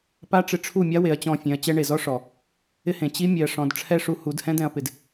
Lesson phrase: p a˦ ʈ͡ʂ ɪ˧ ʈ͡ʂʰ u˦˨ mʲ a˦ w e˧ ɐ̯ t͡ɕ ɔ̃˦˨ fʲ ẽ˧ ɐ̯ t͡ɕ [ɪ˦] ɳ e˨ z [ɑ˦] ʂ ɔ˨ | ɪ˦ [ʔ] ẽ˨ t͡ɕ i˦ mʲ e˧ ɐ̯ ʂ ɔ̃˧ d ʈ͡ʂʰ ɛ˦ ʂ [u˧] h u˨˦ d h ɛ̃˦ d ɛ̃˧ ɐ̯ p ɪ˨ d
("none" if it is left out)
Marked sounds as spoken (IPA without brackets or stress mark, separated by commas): ɛ˦, ɔ˦, h, u˧